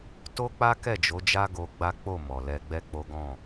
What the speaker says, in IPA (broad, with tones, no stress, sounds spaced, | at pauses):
t o˦ k͡p a˦ k ɛ˦˨ d͡ʒ o˨˦ d͡ʒ a˦ ɡ o˧ ɡ͡b a˦ k͡p o˦˨ m ɔ˨ l ɛ˧ ɡ͡b ɛ˦ k͡p o˦ ɡ ɔ̃˦˨